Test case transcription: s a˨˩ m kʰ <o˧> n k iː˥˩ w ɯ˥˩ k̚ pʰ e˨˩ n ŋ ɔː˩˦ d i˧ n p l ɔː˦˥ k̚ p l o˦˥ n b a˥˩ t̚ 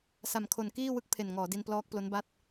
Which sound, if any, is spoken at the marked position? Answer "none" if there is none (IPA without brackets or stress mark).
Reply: o˨˩